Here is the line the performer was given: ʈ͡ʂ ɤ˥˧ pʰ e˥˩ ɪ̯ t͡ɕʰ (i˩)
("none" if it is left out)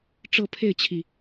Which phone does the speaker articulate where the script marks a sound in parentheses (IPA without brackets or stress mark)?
i˩